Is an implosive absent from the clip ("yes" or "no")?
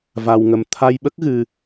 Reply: no